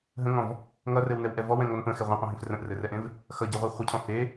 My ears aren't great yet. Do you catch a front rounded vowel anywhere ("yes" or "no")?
no